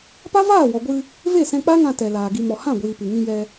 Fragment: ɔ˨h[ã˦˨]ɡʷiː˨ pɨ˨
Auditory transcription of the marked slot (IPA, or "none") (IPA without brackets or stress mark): ã˦˨